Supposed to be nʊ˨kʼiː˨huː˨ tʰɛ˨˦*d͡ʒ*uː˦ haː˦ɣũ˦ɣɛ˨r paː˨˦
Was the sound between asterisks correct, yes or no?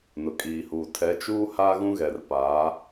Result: no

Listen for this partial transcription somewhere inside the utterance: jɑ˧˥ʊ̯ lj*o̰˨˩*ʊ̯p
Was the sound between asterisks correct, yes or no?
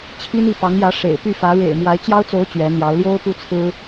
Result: no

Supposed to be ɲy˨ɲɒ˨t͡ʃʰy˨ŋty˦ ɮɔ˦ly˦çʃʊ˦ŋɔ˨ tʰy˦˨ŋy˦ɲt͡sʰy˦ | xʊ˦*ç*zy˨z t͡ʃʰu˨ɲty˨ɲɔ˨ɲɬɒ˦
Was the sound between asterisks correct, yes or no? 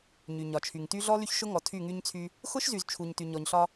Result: no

